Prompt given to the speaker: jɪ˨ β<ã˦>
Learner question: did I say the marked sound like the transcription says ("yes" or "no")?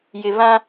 yes